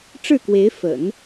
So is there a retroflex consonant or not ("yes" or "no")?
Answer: yes